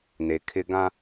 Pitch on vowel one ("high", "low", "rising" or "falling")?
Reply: low